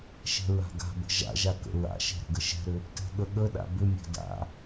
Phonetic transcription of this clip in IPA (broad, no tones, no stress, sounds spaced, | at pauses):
ʃ ɛ̤ ɹ a̤ ɡ a̤ b ə̤ ʒ a̰ ʒ a k ə̰ ɹ a̰ ʃ ɛ̤ ɾ ə̤ ɡ ə ʃ ɛ̤ ɾ ʏ | t ɛ̤ ɠ ə ɠ ə ɗ a̰ b ʏ mʲ a̤ d a̰